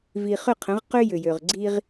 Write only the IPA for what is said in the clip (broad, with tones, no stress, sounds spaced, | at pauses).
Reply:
v i˨ χ ʏ˦˨ qʰ ə̃˨˦ ʁ q ʏ˦ j ʏ˨ j ø˨ ʁ ɡ͡ǀ i˦ ʁ